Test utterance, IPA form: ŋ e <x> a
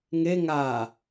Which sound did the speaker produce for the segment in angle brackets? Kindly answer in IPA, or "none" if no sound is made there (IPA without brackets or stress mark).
ŋ